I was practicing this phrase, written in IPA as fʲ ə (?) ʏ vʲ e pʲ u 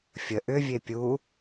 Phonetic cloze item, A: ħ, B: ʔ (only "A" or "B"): B